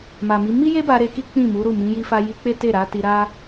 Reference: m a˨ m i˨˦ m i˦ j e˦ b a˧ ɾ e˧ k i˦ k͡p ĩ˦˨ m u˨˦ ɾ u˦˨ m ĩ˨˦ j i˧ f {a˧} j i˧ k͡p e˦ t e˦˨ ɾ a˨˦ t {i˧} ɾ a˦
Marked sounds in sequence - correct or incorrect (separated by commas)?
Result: correct, correct